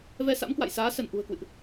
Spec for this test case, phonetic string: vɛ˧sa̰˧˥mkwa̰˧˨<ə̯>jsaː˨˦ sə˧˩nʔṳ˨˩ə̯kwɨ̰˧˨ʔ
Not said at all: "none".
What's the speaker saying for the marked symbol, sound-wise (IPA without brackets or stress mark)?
none